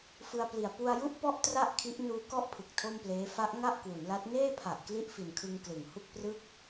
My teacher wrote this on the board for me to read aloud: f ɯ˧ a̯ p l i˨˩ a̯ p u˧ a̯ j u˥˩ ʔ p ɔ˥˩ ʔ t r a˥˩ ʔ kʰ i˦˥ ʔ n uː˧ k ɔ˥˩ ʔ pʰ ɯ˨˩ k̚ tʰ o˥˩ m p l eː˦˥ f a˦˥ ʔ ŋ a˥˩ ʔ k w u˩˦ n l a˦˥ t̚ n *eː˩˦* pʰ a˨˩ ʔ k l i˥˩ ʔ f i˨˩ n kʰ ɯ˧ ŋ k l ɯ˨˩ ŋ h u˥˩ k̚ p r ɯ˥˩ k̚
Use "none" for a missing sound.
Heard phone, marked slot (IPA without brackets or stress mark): eː˥˩